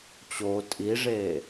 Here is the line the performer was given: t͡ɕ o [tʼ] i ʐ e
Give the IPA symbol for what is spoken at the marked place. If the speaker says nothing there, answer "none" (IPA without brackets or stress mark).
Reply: tʼ